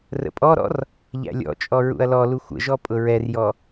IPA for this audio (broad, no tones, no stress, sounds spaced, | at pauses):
r ə̰ pʼ ɔ ɾ ɔ̰ r | ʎ æ̰ lʲ ɔ̰ t͡ʃʼ ɔ ɹ ṵ ɐ̯ l ɔ l u xʷ ə̰ ʒ ɔ pʼ ʊ ɹ ɛ r j ɔ